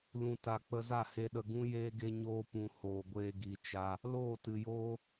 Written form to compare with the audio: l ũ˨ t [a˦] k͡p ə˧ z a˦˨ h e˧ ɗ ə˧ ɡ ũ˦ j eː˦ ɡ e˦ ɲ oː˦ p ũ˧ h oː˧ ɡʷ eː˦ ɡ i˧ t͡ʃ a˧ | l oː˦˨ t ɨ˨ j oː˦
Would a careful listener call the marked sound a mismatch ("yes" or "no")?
yes